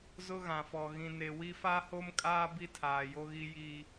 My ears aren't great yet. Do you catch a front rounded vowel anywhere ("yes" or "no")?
no